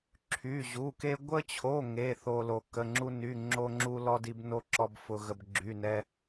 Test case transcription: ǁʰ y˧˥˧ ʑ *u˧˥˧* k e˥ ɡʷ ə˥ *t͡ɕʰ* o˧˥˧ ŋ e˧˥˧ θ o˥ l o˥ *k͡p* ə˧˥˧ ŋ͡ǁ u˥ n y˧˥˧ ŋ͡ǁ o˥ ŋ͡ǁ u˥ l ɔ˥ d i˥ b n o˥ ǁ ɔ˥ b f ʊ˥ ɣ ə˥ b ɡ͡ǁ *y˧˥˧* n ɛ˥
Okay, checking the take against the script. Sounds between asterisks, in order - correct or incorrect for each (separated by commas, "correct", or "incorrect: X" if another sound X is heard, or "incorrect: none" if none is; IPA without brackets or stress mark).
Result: correct, correct, incorrect: k, correct